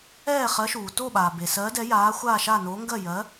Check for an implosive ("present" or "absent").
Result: present